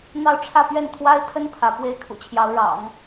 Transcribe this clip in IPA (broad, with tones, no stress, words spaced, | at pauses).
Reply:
n̪ɑ˥˧ʊ̯ʈ͡ʂʰä˥˧pɥɛ˥˩n t̪ʰwa˥ɪ̯t̪ʰə˥n t̪ʰä˧˥ pwe˥ɪ̯kʰṵ˨˩t͡ɕʰjɑ˧˥ʊ̯ ɻɑ̰˨˩˦ŋ